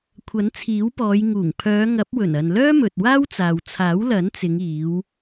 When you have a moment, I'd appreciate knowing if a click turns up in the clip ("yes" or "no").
no